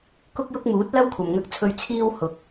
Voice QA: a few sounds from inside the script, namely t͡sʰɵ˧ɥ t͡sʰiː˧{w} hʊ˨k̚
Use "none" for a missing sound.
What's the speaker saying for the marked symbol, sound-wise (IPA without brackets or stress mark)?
w